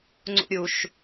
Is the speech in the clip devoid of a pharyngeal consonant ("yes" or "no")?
yes